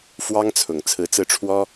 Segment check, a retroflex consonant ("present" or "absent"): present